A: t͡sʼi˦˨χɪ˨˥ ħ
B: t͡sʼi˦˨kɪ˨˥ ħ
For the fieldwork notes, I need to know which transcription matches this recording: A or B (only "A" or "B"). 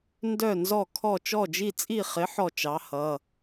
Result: A